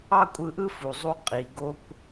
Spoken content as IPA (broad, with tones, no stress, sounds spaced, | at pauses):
ɑ˥ kʷʼ ɯ˧ ʔ ɯ˥ f u˩ zˤ u˧ qʼ i˩ ɡ o˥ kʷ